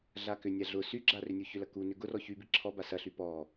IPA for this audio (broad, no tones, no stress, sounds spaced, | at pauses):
ɮ a k ʏ nʲ a ɮ ʊ s y ɡ͡ǁ a r ʏ nʲ u ç ʏ l ɐ k u n ʏ ɡ ʊ r ɔ ç y b i ǁʰ ɔ b a s ɐ ɬ y p ɔ